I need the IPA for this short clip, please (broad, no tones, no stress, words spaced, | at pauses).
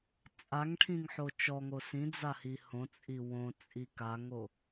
t͡sʼaŋʈʰĩŋħo t͡ʃɔŋo sĩd͡zahi hõt͡sʼi wõt͡sʼi kaŋo